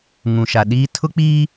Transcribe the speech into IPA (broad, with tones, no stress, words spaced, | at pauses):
ŋũ˨ʃa˨ɗiː˦ tʰʊ˦k͡piː˦